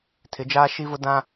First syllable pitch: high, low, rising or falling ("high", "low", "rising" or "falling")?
rising